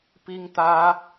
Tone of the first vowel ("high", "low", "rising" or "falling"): high